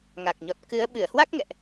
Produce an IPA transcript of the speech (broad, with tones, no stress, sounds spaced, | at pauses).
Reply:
ŋ a˨˩ k̚ ɲ ɔ˨˩ t̚ k ɨ˨˦ ə̯ ɓ ɨ˧˩ ə̯ h w a˦˥ k̚ ŋ ɛ̰˧˨ ʔ